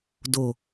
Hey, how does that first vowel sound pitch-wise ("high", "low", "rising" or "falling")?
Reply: low